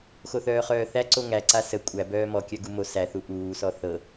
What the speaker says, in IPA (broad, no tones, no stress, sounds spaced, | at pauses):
x o θ œː χ œː θ æ ǀ o ŋ æ ǀ a s ə kʷʼ æ b œː m ɔ kʲ œ ɡ u m o s æ θ u ʔ uː s ɔ θ ɤ